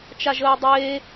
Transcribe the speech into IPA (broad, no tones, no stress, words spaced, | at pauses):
t͡ʃaʒəːdˤeː